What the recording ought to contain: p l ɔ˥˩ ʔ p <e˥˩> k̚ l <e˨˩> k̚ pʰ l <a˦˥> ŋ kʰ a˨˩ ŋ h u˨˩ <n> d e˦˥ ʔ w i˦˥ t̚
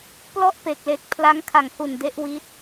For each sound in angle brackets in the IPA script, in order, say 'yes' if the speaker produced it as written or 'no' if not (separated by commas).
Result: no, yes, yes, yes